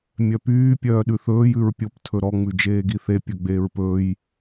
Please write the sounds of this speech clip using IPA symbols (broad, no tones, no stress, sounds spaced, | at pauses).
mʲ œ p yː pʲ œː ɗ ʉ θ ɵː j ʉ ɹ pʲ o p tʰ ɵ ɾ ɔ ŋ͡m ʉ d͡ʒ eː ɡ i θ e pʲ ɵ ɡ͡b eː ɹ p ɵː j